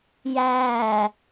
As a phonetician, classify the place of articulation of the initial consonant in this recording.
palatal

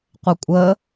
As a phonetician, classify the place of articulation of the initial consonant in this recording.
uvular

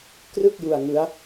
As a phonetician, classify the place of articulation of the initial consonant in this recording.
velar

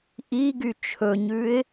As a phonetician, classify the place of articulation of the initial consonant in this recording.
glottal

